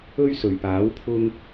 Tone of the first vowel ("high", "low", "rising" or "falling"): high